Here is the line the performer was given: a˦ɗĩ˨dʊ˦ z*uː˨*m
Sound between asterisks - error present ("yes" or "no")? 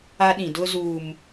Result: no